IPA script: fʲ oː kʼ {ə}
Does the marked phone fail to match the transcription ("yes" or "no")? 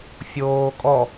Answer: yes